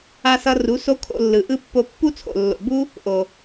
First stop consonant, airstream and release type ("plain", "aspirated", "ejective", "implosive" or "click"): aspirated